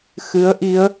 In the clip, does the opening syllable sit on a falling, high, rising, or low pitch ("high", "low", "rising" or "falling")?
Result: rising